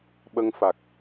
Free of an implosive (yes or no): no